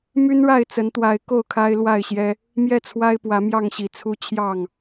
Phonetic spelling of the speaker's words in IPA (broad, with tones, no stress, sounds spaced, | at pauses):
m y˦ n ɻ a˥˨ ɪ̯ t͡s ə˨˦ n t̪ w a˨˦ ɪ̯ k o˥˨ ʊ̯ kʰ a˦ ɪ̯ l w a˥˨ ɪ̯ ɕ j ɛ˦ | m j ɛ˥˨ t͡sʰ w a˦ ɪ̯ p w ä˨˦ m j ɑ˥˨ ŋ ɕ i˨˩ t͡sʰ u˦ t͡ɕʰ j ɑ˥˨ ŋ